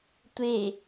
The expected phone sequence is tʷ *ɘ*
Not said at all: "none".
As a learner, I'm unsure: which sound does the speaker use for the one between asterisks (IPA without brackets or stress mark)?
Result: e